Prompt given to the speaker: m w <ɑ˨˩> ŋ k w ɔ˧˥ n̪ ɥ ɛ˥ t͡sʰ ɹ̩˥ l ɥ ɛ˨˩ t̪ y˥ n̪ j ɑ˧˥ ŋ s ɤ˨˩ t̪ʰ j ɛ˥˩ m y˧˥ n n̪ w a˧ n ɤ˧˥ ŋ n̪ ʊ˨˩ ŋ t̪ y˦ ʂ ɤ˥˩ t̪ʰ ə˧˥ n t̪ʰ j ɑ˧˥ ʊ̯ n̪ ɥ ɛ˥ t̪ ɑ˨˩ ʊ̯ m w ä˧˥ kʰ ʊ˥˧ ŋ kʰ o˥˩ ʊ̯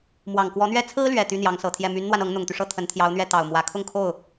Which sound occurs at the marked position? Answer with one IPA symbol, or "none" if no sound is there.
ɑ˨˩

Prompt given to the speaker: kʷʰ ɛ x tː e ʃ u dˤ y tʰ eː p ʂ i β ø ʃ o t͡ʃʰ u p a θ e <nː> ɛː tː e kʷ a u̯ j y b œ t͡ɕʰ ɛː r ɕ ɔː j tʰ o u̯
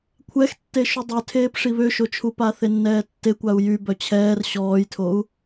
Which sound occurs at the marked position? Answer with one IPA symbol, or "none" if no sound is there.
nː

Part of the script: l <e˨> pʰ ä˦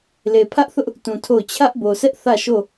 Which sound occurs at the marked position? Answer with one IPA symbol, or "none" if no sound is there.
e˨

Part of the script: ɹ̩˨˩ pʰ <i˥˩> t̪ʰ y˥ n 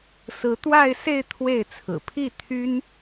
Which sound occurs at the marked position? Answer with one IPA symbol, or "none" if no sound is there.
i˥˩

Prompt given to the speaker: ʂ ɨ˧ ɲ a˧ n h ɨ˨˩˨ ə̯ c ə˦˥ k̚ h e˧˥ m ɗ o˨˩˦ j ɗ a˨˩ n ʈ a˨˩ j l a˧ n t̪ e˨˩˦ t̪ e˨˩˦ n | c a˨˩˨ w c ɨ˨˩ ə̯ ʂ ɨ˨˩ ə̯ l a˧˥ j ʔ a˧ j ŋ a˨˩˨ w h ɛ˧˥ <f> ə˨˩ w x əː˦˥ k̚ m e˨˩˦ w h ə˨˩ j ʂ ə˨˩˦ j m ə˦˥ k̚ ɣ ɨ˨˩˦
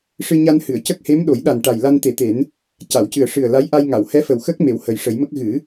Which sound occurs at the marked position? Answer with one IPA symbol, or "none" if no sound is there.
f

